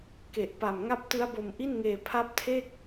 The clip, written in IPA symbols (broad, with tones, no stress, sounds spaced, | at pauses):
k e˨˩ ʔ p a˨˩ m ŋ a˦˥ p̚ t ɯ˦˥ a̯ b o˧ m ʔ i˥˩ n ŋ eː˧ pʰ a˦˥ p̚ tʰ e˥˩ k̚